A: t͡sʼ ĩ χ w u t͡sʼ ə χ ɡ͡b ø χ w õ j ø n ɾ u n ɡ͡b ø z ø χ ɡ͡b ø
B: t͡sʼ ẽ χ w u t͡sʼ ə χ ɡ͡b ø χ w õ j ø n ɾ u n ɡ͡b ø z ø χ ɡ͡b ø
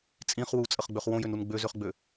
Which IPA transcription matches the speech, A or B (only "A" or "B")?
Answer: A